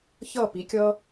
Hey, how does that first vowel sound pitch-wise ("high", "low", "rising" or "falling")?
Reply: falling